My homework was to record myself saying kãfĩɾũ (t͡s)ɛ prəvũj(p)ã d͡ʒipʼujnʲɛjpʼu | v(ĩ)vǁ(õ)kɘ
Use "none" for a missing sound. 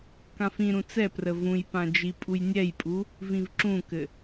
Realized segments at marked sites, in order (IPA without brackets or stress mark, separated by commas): t͡s, p, ĩ, ũ